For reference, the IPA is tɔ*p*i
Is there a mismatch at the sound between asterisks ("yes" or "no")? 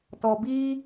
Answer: yes